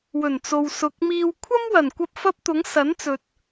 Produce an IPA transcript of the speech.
w ɵ˨˩ n t͡s o˨ w s ʊ˨ k̚ m iː˧ w kʷʰ ɐ˥ m w ɐ˨˩ n kʷ ɐ˧ p̚ f ɐ˥ p̚ t̪ ʊ˨˥ ŋ s ɐ˨˥ n t͡s ɵ˨ t̚

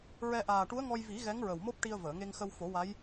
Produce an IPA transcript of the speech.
ɹ ɛ˧ ʔ aː˨˩ ʈ u˧˥ ə̯ ŋ ɔ˧ j v i˨˩˦ ɣ ɛ˧˥ ŋ ɹ ə˨˩ w m o˦˥ p̚ ʈ i˧ ə̯ v əː˨˩˨ ŋ e˧ ŋ x ə˧ w f o˨˩˦ w a˧˥ j

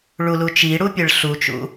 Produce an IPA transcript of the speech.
ɭ u l u t͡ʃ i ɽ u pʲ ɯ ɭ ɬ u t͡ʃ ṵ

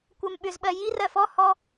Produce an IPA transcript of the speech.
kʷ ɜ m ɓ ʏ z ɓ ɜ j i r ɜ f ɔ h ɔ

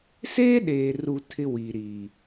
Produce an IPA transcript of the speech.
s eː˦ ɗ eː˨ r u˨ tʰ ɪ˦ w i˨ ɾ iː˨

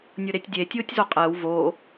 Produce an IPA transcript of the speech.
nʲ ʊ ɾ e tʲ dʲ e tʲ ʊː tʲ z o qʼ əː w v o

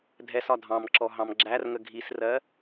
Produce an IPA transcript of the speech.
dʱ ɛ s ɒ dʱ ɑ̃ m ǁ ɔ ɦ ɑ̃ m ɡ͡ǁ æ r ŋ ə ɡʱ i s r ɜ

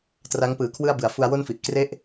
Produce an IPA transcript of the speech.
t r a˦˥ ŋ p ɯː˩˦ kʰ w ɯ˥˩ a̯ b ɯ˩˦ a̯ f u˧ a̯ w o˥˩ n f i˨˩ ʔ k r e˥˩ ʔ

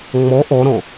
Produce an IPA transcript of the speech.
ŋ͡m ɔ ʔ ɔ ɾ ɔ̃

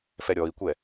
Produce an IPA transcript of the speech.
f ɛ ɾʲ ɔ i̯ kʷ ɛ

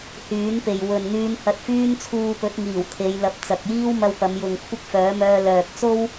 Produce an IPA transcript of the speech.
h yː˨˥ n p e˨ j w ɵ˨ n n̪ yː˧ n h ɐ˧ t̚ f yː˥ n t͡sʰ uː˧ p ɵ˨˥ t̚ ŋ iː˨˩ w t̪ʰ e˨˧ j l ɐ˨˥ p̚ t͡s ɐ˨ k̚ j iː˥ w m ɐ˧ w p ɐ˨˧ m j ʊ˨ ŋ kʷʰ ɪ˥ k̚ f œː˨˥ m œː˧ l œː˨ k̚ t͡s o˥ w

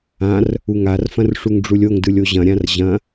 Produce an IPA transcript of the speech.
ã r | u ŋ a r f ɐ̃ r ʂ u ŋ ɖ͡ʐ u lʲ o ŋ d ɯ lʲ o ʑ ɐ̃ ɾʲ ã r ʑ ɐ̃

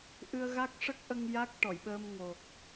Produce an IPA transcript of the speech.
ʔ ɨ˧ ə̯ ɣ a˦˥ k̚ ʂ ə˦˥ k̚ ʔ ə˧ ŋ j a˦˥ k̚ ʈ ɔ˨˩˨ j ɓ ə˧ m ŋ o˨˩ k̚

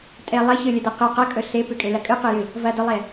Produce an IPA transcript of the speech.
tʼ e lˠ ɐ ç ɨ lʲ ɵ d e q ɨ q ɐ kʼ ɵ ɬ e p ʉ kʼ e l ɐ kʼ ɨ q ɨ j ɨ | v ɐ d ɵ lˠ e

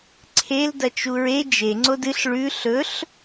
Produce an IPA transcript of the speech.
ǀʰ e l d ɐ t͡ʃ u ɹ e d͡ʒ e ŋ͡ǀ o d ɨ ɬ ɭ ʉ ɬ ɵ ɬ

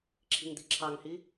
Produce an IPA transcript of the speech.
ǁʰ i̤ ŋ d̪ i̤ ǁʰ ɑ ŋ h i

